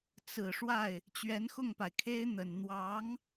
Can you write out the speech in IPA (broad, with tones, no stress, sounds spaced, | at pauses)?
t͡s ɹ̩˨˩ ʂ w a˥˩ ɪ̯ | t͡ɕ ɥ ɛ˧˥ n x ʊ˥˩ ŋ p a˩ ɪ̯ kʰ e˥ ɪ̯ n̪ ə˨˩ n n̪ w ɑ˧˥ ŋ